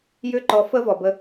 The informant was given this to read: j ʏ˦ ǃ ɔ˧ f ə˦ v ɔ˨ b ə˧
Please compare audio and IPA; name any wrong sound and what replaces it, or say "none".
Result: none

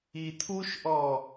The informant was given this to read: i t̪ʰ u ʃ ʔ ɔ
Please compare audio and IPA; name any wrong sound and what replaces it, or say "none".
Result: none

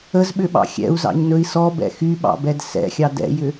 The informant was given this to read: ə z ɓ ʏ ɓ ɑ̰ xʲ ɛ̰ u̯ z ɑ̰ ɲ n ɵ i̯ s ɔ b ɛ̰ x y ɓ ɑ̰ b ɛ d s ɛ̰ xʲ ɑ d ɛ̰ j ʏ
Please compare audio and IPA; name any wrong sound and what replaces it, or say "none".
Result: none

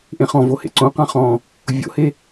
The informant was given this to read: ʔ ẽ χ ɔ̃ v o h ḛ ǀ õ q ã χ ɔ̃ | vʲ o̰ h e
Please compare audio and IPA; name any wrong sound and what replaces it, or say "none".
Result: none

